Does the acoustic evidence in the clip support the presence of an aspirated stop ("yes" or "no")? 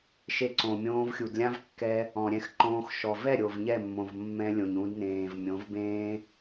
no